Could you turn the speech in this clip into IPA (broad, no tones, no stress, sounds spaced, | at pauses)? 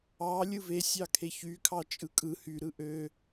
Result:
ɑ lʲ ɯ v e sʲ ɑ kʰ e ç y kʰ ɑ t͡ʃʼ ɯ kʼ ɯ h y ɾ ɯ ʔ ø